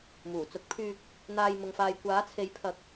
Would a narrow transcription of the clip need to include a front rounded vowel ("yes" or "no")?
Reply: yes